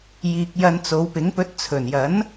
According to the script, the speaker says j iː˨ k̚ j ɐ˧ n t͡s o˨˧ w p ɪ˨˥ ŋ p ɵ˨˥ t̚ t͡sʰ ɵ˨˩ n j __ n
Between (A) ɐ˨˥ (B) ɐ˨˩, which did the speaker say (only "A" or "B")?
A